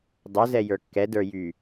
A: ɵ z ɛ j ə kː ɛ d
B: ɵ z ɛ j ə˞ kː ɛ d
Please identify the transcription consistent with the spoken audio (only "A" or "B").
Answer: B